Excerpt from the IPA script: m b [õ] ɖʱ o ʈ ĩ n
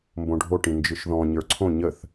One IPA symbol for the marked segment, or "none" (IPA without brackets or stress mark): õ